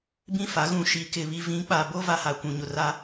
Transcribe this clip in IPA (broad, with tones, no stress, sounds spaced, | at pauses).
b ĩ˦ f a˨˦ ɣ ũ˨ ʃ i˨ k ɪ˨ β i˨ v ĩ˨˦ k͡p a˨ b o˦ v a˦ h a˨ kʷ ũ˨ ɲ ʊ˨ r a˦